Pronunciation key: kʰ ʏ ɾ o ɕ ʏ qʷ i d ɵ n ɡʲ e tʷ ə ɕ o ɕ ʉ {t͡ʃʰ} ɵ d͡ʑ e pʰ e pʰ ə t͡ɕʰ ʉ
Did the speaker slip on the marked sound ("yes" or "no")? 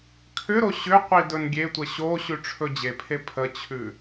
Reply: yes